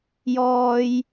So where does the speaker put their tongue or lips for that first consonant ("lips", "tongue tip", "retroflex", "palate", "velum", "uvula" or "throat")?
palate